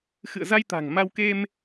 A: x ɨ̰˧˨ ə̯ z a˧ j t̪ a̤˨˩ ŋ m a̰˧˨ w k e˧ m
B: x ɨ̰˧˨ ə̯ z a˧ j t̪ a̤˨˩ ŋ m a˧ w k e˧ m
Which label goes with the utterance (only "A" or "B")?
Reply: B